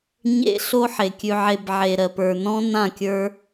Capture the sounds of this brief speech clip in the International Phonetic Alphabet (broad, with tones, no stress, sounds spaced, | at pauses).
ɲ ḛ˦ ɬ o˦ ħ e˨ kʲ ʉ˧ ʕ e˧ b ʕ e˨ ɾ ɜ˨ p ə˞˨ n ɔ̃˦ n ã˦˨ kʲ ə˞˧